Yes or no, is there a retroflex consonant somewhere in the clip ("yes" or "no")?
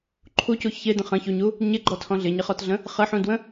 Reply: no